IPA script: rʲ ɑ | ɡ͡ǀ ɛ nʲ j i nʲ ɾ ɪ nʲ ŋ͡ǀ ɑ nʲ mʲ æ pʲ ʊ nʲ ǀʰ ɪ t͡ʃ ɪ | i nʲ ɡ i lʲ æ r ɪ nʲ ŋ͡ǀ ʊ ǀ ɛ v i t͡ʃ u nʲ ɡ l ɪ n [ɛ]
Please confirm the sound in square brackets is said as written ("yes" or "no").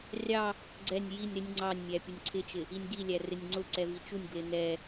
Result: yes